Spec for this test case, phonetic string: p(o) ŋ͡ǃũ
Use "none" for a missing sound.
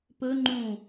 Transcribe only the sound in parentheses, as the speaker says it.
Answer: ɵ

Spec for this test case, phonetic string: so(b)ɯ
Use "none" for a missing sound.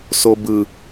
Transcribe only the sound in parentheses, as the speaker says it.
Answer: b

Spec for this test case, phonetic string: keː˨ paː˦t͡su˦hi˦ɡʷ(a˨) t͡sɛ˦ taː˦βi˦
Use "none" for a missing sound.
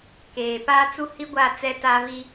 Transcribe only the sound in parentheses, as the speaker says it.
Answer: a˦˨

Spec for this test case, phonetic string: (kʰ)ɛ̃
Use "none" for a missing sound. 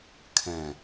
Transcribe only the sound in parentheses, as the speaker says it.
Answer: kʰ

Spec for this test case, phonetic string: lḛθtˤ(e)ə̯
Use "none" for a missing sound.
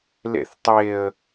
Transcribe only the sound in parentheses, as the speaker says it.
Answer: e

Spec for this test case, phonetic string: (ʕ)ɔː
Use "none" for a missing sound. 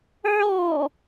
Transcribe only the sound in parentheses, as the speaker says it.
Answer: ʕ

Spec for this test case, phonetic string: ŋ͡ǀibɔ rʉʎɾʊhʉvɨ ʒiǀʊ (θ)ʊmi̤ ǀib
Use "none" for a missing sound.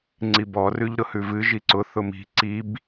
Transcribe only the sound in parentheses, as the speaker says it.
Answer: θ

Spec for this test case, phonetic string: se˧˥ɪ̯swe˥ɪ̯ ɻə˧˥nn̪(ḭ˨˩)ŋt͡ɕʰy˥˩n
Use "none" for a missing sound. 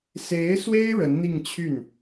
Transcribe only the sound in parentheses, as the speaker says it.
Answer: i˥˧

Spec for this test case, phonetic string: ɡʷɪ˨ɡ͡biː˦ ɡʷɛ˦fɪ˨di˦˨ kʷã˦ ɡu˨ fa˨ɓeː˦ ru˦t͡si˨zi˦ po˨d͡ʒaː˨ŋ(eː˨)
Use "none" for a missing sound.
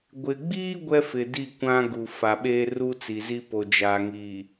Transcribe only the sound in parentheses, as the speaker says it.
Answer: iː˨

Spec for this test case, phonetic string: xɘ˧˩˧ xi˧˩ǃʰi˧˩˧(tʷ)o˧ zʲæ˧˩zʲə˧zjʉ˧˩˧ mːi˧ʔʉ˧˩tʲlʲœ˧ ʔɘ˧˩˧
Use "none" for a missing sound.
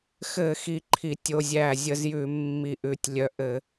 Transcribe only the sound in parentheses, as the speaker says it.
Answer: tʲ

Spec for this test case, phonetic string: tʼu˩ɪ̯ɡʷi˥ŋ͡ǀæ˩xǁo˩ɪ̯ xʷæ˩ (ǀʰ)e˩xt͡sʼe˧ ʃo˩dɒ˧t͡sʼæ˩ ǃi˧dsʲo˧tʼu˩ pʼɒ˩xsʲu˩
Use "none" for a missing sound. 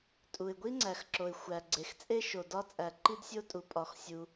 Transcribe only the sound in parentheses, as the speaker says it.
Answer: ɡ͡ǀ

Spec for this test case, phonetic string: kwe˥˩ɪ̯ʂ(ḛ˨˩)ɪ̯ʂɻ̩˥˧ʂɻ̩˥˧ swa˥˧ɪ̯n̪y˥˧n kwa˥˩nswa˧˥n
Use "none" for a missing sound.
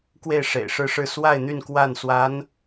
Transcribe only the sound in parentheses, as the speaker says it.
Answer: ḛ˨˩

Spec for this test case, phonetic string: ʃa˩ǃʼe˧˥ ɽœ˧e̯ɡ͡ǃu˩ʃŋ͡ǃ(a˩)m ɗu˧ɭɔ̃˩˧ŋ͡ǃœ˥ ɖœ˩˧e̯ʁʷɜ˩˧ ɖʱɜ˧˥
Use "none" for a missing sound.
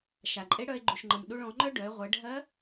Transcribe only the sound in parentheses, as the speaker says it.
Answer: ə˩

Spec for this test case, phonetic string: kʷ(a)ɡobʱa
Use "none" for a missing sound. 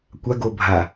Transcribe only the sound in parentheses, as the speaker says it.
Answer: a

